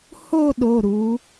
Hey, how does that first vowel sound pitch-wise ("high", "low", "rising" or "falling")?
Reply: falling